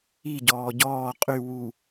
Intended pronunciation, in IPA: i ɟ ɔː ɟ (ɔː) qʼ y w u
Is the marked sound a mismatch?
no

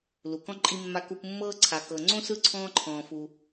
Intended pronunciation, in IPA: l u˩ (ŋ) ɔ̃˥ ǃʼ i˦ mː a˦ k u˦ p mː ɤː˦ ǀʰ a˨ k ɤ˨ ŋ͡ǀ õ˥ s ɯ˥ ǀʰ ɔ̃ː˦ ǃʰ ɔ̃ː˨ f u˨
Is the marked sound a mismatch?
yes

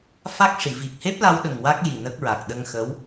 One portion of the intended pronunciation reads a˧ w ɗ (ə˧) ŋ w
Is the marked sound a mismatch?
yes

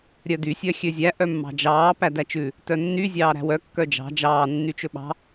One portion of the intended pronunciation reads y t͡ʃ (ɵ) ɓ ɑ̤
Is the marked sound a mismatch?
no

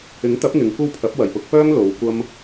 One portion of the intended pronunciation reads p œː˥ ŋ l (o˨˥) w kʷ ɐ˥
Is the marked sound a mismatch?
yes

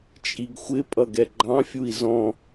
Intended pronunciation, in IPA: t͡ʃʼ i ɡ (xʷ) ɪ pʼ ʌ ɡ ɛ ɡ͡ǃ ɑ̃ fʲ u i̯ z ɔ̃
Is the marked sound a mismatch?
no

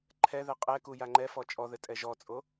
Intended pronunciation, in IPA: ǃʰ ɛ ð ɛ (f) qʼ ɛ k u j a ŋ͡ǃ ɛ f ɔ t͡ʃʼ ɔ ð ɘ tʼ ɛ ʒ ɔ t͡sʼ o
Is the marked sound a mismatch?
yes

